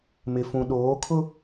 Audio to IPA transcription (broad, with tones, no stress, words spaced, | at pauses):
mɪ˨fũ˨ ɗoː˨˦kʰʊ˦